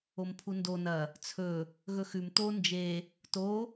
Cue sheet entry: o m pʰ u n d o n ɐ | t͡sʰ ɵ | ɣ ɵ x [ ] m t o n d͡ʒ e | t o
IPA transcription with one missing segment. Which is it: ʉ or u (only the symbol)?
ʉ